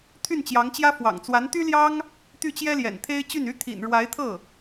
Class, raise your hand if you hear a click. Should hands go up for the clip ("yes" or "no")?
no